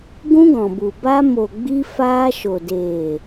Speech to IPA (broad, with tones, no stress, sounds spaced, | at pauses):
ɡ ũ˦ ɡ ɔ̃˨ b u˨ b a˧ m o˨ ɡ͡b i˧ f aː˧ ʃ o˨ d eː˨